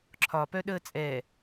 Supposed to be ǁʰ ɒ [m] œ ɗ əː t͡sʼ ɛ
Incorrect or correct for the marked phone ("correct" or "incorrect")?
incorrect